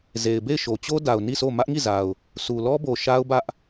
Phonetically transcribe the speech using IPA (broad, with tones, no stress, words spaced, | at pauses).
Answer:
ze˨ɪ̯be˦˨ɪ̯ʃo˨t͡ɕo˦ da˨ʊ̯ni˦˨sʰo˦˨ mä˦ʔŋi˦˨za˨ʊ̯ | sʰu˨lɔ˦bo˨ ʃa˦ʊ̯bä˦ʔ